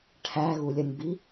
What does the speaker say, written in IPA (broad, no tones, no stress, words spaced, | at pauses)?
ʈʰæɣulʲɐnʲbi